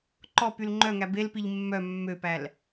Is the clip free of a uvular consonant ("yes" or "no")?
yes